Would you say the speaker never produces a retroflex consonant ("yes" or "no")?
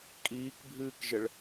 no